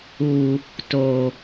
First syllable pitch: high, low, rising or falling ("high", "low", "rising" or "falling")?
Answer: low